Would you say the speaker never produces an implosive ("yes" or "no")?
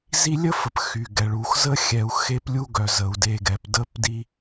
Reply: yes